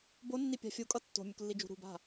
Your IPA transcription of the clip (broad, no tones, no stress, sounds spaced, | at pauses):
b o nː i pʲ a̤ fʲ u kʼ ʌ tː o̤ mʲ u k lː i d͡ʒ ṳ ɾ ṳ b a̤